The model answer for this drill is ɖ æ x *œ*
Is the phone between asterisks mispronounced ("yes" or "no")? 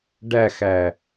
yes